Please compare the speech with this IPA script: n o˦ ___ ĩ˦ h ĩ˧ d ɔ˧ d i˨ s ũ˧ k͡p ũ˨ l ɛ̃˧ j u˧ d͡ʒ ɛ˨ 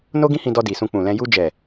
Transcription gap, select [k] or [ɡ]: ɡ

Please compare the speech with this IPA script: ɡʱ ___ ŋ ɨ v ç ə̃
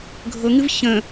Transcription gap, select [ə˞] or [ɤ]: ɤ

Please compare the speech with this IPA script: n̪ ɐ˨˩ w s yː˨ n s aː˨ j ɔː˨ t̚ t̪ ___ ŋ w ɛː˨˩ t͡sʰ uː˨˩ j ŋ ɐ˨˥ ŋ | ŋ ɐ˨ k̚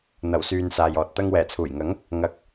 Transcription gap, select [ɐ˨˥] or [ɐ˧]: ɐ˧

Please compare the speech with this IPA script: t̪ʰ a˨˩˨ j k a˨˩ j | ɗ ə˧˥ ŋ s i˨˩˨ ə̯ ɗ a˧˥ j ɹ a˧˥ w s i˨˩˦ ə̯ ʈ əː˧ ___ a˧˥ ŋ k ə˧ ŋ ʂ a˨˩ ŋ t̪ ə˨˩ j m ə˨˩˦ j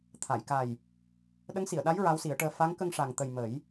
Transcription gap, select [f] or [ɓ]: f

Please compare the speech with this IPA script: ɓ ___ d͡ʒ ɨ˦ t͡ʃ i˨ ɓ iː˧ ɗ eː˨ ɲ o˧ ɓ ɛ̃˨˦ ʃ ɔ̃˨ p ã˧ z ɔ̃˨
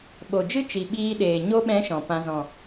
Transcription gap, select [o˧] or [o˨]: o˨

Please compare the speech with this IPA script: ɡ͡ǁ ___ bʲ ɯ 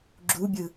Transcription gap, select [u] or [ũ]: u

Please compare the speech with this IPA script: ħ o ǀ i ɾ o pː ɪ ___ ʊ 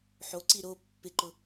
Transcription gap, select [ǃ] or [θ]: ǃ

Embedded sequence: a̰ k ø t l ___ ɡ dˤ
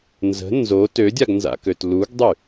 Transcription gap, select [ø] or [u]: u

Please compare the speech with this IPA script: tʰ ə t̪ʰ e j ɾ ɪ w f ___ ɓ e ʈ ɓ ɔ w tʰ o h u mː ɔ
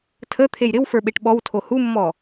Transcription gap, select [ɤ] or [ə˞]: ə˞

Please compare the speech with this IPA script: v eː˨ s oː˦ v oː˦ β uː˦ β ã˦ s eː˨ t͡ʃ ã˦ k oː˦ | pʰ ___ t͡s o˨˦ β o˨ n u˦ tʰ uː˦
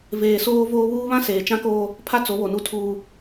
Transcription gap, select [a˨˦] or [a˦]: a˦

